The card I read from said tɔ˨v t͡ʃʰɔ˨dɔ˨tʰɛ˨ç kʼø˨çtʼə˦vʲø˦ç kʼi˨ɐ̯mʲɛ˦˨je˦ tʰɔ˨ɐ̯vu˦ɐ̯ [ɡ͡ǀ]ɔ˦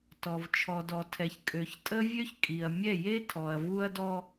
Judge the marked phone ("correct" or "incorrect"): incorrect